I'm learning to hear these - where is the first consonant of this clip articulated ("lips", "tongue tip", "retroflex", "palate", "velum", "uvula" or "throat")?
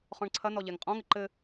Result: uvula